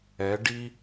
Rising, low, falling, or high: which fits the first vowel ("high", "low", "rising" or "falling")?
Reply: rising